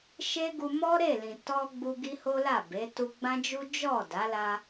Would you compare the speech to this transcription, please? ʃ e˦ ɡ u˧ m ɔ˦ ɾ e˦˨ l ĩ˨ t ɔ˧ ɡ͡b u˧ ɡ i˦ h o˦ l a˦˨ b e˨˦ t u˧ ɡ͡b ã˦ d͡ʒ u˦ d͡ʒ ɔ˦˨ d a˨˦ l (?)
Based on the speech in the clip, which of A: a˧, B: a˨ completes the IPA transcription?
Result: A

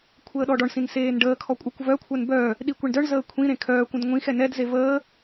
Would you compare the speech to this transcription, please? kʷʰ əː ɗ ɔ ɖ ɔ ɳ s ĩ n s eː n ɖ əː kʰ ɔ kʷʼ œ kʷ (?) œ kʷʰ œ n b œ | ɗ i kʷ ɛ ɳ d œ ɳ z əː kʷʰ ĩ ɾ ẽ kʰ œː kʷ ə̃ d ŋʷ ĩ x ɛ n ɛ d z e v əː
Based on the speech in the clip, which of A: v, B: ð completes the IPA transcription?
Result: A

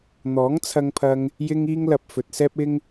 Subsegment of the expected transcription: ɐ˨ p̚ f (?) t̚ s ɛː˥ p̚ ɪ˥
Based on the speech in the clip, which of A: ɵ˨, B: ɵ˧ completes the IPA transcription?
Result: A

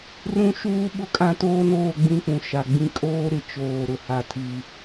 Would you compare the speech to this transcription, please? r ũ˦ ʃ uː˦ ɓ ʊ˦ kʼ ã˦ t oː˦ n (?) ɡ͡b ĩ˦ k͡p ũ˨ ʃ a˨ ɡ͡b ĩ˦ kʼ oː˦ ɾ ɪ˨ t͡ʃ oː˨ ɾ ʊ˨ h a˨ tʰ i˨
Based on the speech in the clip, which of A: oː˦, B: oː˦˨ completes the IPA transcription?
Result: B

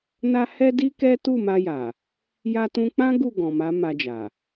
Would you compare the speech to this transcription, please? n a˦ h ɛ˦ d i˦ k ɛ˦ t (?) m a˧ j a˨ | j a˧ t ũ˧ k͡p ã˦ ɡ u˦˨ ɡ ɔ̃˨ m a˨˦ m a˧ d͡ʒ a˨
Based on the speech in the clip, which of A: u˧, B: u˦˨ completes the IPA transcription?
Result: B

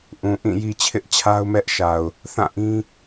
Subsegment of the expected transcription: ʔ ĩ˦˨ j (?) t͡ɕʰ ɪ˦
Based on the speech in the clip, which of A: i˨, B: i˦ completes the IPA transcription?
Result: B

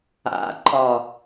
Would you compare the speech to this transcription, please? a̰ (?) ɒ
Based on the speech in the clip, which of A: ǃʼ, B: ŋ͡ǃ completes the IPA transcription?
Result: A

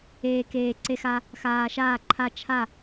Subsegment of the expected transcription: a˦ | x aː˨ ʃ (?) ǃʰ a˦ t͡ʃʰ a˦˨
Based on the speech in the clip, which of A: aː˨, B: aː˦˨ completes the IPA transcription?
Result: B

